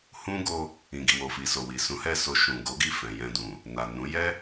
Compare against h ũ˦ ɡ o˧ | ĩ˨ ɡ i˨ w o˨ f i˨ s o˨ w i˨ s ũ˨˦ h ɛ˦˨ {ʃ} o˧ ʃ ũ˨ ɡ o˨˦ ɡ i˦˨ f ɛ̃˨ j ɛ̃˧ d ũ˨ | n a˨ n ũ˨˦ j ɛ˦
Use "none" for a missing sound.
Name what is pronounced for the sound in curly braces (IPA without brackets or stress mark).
s